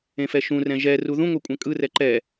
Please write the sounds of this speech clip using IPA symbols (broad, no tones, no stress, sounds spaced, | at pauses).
ẽ f ɛ ʃ ũ r ɛ̃ ʒ ɛ r u ð ũ ŋʷ e kʷʼ ɛ̃ kʼ ɯ r ɛ ǃ ɛ